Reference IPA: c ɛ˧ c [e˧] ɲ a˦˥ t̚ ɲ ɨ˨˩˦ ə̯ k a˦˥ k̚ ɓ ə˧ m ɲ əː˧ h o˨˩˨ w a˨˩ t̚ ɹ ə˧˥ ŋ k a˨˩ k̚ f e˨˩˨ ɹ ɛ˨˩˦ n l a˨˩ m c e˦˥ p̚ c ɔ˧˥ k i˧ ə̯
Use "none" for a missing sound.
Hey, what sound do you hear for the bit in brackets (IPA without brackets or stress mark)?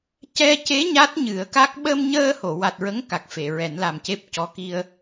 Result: e˧˥